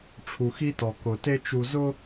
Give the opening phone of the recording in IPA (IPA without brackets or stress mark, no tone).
ʈ͡ʂʰ